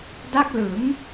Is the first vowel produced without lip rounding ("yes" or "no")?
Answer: yes